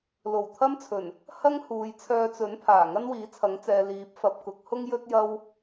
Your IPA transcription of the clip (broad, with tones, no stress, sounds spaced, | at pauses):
l o˨˩ w t̪ʰ ɐ˥ m t͡sʰ ɵ˨˩ n | h ɐ˥ ŋ h uː˨ j t͡sʰ œː˧ t͡s ɵ˨˥ n pʰ aː˨˩ ŋ ɐ˥ n w iː˨˥ t͡sʰ ɐ˨˥ ŋ t͡s ɛː˨ l iː˨˥ p̚ f ɐ˨ p̚ k ʊ˨˥ k̚ h ʊ˥ ŋ j ɵ˥ t̚ j ɐ˥ w